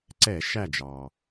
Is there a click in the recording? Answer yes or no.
yes